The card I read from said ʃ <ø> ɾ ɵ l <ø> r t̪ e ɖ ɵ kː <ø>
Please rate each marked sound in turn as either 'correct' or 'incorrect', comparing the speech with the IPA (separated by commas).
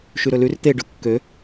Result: incorrect, incorrect, correct